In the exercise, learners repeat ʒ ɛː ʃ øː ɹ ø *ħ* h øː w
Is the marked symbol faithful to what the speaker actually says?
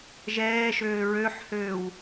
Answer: yes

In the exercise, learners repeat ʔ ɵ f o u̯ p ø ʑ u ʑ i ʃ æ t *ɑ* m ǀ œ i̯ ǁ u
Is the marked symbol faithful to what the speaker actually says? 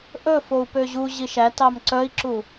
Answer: yes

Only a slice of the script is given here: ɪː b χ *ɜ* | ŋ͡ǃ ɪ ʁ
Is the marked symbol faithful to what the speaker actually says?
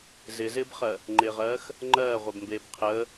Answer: yes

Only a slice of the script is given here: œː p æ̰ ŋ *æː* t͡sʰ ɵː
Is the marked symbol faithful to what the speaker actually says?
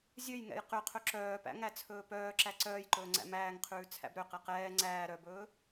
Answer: no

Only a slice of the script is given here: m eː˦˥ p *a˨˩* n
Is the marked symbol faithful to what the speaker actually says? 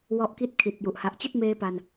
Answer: no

